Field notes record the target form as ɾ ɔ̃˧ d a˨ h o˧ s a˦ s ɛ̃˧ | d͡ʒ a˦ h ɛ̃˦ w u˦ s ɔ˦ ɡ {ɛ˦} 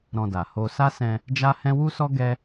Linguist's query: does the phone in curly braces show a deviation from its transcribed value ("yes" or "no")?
no